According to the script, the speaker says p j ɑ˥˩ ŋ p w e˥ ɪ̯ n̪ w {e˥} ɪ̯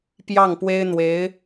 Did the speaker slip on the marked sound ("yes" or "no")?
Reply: yes